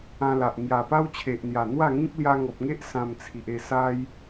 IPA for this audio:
ã˧la˨ʔ ŋja˨˩pa˦wt͡ɕʰe˨ʔn̪ja˨˩ n̪wa˥˧ŋĩ˦k̚ lja˧ŋɔ˨p̚ŋe˦ʔ sã˧mt͡sʰi˨ʔ e˥˧sa˦j

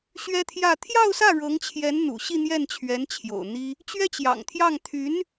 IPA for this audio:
ɕɥɛ˥t̪ʰjä˥˧ t̪ʰjɑ˥˧ʊ̯sä˥˩ɻɤ˧˥ŋt͡ɕʰjɛ˧˥n n̪ṵ˨˩ɕi˥˧n̪jɛ˥˩n t͡ɕʰɥɛ˧˥n t͡ɕʰjo̰˨˩ʊ̯n̪i˥ | t͡ɕɥɛ˥t͡ɕjɑ̰˨˩ŋt̪ʰjɑ˥˩ŋ t̪ʰy˧˥n

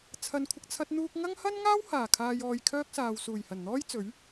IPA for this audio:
t͡sʰɐ˨˧nkʷʰɪ˨k̚ t͡sʰɐ˧t̚n̪uː˧k̚ŋɐ˥ŋ hɐ˥nŋaː˥w haː˨˩kʰaː˨jɔː˨j kʰœː˥k̚saː˨wsuː˨˩jhɐ˨˩n n̪ɔː˥jt͡sɵ˨˥ɥ

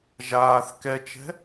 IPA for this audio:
ʒaːθ kɛt͡ʃɛ̤

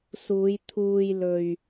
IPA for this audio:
suː˨˧jt̪ʰuː˧jlɵ˧ɥ

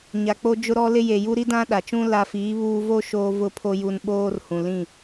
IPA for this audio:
ɲa˨k͡po˦ d͡ʒʊ˦ɾɔ˦lɪ˦ je˨ju˦ ɾi˦dã˦ɗa˨t͡ʃũ˦ la˦ fiː˨˦βuː˦ vo˦ ʃoː˦vʊ˦pʰo˦ ju˦n ɓoː˦rhũ˨lĩ˦˨

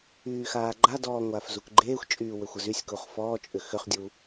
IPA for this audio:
yːxaːɡ͡ǃadɔː ŋʷaːfzukɡ͡ǃeːxʷt͡ʃʼyː wʏxʷəzysʲkuχ fɔːt͡ʃʼʏ xʏχdʲu

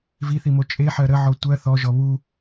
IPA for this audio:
viθimo t͡ʃʼeħɜ ɾəʕɔ tʷɜ θɔʒɔ βu

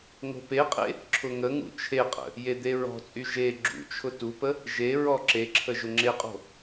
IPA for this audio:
ŋo̤peqʼḛ | ǁʰʊŋəŋṵ t͡ʃʰeqʼə̰ | jed̪eɹɔ̤t͡sʼy ʒe ɡ͡ǁṵt͡ʃʰʊ tupə | ʒeɹɔ ǁeǁʰə ʒʊŋ͡ǁeqʼo̤

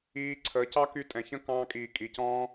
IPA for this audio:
iː˧ǀʰəː˨˦cɑ˦ky˧ tʼɛ̃˨çə̃˦kɑ̃ː˧kʼiː˨ kʼi˨cɔ̃ː˦

